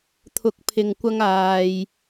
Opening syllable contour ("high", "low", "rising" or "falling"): rising